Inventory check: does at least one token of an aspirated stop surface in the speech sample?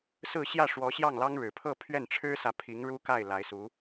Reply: yes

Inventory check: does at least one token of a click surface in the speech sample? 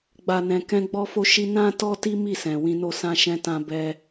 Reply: no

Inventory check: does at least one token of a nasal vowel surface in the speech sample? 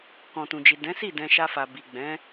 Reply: yes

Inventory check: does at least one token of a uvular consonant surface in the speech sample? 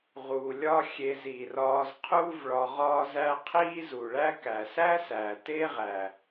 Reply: yes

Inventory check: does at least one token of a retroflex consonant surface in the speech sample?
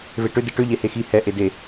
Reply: yes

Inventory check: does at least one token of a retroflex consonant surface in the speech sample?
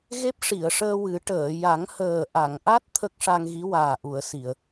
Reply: yes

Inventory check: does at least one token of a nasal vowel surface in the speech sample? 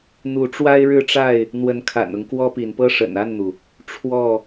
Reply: no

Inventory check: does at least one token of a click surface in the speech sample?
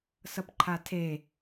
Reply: yes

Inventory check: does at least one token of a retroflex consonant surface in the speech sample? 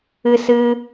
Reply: no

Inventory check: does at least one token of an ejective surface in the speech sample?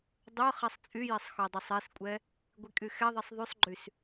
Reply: yes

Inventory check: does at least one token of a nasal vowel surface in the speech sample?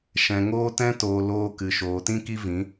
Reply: yes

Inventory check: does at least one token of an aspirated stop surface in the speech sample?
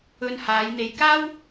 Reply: no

